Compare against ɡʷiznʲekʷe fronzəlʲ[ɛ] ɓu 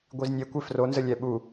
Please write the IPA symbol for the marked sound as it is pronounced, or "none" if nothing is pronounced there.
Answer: ɛ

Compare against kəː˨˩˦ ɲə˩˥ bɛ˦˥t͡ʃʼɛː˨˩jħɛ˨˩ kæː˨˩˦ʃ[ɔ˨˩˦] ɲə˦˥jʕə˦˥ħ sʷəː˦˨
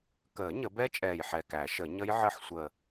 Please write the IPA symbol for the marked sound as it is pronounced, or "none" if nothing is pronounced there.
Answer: ə˨˩˦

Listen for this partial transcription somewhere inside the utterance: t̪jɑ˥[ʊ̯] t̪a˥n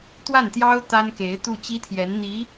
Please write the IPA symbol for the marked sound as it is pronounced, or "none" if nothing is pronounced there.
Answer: ʊ̯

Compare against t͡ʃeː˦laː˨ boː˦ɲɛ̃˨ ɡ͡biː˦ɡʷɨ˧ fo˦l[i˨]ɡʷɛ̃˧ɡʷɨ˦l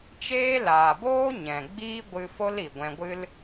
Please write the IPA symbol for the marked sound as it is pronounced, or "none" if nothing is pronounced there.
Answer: i˨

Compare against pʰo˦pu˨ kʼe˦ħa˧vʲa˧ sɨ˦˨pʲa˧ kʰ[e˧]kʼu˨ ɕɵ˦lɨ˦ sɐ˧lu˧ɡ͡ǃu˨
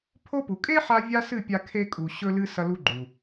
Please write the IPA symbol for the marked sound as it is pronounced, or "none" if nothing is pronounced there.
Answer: e˧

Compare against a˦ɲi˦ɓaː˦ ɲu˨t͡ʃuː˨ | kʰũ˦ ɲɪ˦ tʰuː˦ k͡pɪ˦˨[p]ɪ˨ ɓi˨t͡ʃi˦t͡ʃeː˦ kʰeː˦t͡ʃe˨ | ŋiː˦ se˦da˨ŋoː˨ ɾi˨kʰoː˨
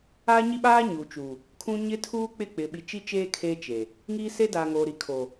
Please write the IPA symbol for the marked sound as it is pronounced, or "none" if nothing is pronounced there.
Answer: k͡p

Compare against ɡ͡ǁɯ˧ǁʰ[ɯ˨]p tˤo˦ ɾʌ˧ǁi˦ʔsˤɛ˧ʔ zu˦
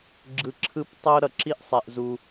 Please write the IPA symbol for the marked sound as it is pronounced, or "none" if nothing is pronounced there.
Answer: ɯ˦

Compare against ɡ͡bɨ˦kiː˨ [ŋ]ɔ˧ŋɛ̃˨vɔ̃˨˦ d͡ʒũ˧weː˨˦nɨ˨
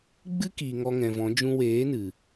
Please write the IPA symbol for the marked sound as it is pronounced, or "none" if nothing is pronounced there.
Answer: ŋ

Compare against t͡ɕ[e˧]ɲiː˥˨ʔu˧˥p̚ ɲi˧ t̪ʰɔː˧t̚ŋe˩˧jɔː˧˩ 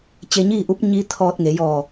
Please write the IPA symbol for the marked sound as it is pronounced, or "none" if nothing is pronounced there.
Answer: e˧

